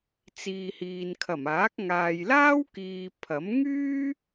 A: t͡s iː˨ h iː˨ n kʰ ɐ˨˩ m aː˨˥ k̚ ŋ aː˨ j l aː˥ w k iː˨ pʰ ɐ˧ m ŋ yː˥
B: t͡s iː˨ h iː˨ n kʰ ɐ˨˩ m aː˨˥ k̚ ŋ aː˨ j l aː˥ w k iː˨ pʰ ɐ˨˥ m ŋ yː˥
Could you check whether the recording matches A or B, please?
B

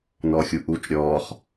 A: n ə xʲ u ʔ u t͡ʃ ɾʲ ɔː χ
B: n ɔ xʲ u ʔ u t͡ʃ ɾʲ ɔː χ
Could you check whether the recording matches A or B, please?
B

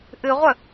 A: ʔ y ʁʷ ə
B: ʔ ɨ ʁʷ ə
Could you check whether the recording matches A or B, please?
B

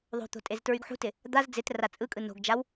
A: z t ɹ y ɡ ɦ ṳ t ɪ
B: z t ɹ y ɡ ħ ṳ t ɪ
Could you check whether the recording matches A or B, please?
B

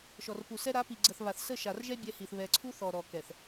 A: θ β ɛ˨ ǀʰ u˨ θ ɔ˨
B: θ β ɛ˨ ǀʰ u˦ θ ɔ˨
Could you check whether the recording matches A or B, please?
B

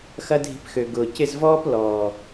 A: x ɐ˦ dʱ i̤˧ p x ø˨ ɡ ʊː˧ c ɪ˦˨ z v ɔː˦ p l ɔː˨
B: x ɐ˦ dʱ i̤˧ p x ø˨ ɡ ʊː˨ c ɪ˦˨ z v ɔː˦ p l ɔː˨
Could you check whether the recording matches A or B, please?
B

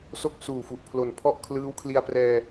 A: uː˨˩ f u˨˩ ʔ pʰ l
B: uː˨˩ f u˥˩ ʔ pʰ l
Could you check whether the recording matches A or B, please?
A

